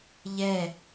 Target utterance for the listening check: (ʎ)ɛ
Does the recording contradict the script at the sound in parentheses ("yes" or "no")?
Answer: no